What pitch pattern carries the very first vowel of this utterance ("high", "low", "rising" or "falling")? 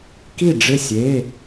falling